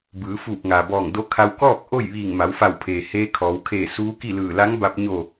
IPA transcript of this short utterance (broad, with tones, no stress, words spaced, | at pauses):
bɯː˩˧fuː˧˩p̚ŋaː˩bɔː˧˩ŋ do˧˥kʰa˧w kɔː˥˨k̚ ʔo˥˨j ʋiː˧˩ŋma˩˧wfa˧˩wpʰeː˩ heː˧kʰɔː˩˧wkʰeː˧˩ suː˧˥ki˥˨lɯː˧˩ la˧˥ŋba˧p̚ɲo˧˩